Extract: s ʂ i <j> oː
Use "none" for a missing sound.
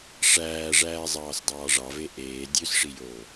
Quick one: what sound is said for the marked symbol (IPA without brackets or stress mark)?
j